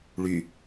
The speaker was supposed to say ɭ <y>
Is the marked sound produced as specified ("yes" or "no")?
yes